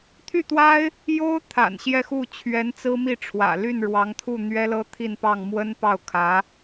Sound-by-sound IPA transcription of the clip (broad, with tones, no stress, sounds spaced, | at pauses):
t̪ʰ y˥˩ t̪ w a˥ ɪ̯ | j o˥ ʊ̯ t̪ʰ a̰˨˩ n ɕ j ɛ˥˧ x u˥˩ t͡ɕʰ ɥ ɛ˧˥ n t͡s ɹ̩˥ m i˥˩ ʈ͡ʂʰ w ä̰˨˩ l y˥˩ n ɻ w ɑ˧˥ ŋ t̪ʰ u˥˩ n̪ ɥ ɛ˥ l ɤ˥ t̪ʰ i˥˧ n p ɑ˥˩ ŋ m w ə˥ n p ɑ˥˩ ʊ̯ kʰ ä˧˥